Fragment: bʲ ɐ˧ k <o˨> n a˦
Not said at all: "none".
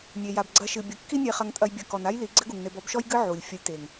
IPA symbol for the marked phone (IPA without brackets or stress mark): ɔ˨